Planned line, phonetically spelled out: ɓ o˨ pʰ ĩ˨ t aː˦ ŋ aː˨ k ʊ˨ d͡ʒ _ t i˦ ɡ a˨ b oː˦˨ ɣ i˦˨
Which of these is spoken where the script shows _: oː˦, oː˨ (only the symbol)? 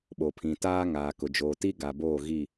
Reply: oː˨